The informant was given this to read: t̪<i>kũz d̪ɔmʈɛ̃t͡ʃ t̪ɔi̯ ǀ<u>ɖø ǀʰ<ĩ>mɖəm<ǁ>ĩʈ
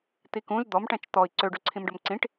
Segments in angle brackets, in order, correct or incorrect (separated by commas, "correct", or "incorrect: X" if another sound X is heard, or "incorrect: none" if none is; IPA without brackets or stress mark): correct, incorrect: ø, correct, incorrect: ǀ